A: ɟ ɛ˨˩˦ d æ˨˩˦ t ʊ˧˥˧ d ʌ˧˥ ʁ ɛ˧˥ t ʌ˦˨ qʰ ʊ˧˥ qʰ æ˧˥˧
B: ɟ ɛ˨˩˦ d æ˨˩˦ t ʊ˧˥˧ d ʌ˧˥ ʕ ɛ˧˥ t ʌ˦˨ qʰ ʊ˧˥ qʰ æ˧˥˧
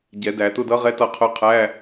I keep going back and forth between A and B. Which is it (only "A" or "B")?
A